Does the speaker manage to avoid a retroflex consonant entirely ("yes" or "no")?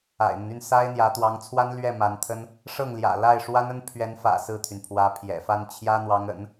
no